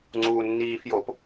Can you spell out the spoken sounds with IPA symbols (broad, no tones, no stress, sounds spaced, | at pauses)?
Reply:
ŋ͡ǀ uː nː iː f j o p